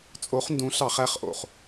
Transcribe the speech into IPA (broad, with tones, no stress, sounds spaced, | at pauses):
t͡sʼ o˨˦ χ n d ũ˨˦ ɬ ɑ˧˩˧ χ æ˦˨ χ ʔ o̰˩ χ